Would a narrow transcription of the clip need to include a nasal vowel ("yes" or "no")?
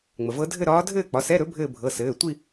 no